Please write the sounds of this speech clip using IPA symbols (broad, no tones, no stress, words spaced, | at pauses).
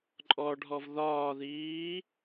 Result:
ǃʼɔɖʱɔv ðɒːðiː